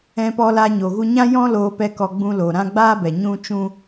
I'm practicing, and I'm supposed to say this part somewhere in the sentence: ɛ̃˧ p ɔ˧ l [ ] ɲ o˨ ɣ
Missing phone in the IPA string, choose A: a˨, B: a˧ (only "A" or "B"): B